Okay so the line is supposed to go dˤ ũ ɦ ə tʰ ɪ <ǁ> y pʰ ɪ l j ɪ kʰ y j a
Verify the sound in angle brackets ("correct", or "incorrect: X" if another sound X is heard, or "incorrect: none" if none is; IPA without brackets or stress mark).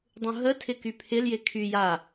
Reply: incorrect: k